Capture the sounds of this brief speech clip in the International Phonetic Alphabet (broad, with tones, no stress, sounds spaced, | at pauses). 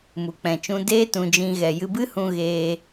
m u˨ k͡p ɛ̃˨ t͡ʃ ũ˧ d eː˦ t ũ˧ d͡ʒ ĩ˧ ɣ ɛ˨ j ɨ˧ b ɨ˦ h ũ˧ ɣ eː˧